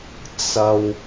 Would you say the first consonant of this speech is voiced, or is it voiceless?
voiceless